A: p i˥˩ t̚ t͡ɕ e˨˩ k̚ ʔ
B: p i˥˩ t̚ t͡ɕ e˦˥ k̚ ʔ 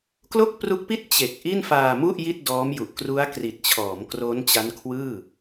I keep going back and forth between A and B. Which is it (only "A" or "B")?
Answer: A